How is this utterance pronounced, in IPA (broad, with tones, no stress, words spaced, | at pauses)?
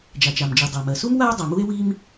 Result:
d͡ʒa˩t͡ʃa˩md͡ʒi˩ dˤa˩mɜ˩su˥m wa˥o̯ dˤa˩mu˥e̯ wi˥m